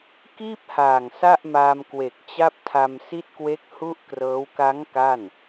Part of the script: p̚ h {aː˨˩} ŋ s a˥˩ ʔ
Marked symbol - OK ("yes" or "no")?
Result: yes